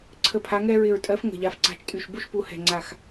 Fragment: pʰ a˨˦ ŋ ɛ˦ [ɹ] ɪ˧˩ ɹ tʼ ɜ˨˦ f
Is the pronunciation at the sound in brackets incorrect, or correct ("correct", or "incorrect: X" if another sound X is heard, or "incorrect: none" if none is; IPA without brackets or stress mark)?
correct